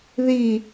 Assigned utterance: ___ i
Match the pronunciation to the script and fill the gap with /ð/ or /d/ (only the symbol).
ð